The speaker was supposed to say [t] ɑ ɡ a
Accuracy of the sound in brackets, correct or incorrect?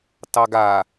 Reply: correct